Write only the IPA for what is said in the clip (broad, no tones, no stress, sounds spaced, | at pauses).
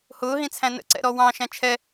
h ʊː ɦ ĩ t͡sʰ æ̃ n ə̰ ǀ ɛ̰ ɾ ɔ w ɑ̃ ʃ æ̃ t͡ʃʰ ɛ